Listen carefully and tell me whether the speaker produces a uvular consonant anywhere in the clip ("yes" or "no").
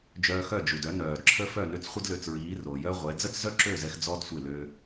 yes